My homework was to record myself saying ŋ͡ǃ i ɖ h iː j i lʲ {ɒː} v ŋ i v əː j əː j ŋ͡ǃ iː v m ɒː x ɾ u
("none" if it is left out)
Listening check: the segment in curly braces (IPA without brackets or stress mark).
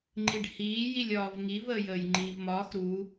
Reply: ɒː